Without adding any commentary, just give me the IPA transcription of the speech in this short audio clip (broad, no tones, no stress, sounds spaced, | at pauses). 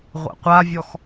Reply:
ʁʷ æ̰ qʷ a vʲ ɔ x